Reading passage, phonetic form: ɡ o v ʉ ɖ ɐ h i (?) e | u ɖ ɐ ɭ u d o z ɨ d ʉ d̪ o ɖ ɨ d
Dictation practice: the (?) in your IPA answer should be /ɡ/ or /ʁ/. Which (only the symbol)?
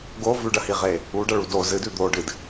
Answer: ʁ